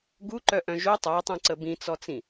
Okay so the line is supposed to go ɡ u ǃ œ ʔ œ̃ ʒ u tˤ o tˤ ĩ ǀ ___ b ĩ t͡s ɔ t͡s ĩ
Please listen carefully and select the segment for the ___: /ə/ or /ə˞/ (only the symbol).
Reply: ə